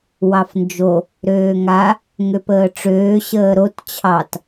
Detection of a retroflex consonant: present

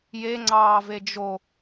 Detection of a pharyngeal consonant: absent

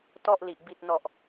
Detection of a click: absent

